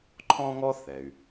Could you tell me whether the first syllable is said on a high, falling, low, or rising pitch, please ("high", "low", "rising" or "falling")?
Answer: high